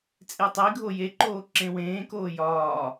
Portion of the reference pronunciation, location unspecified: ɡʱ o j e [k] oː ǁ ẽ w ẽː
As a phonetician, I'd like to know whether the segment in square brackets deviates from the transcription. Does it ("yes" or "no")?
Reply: yes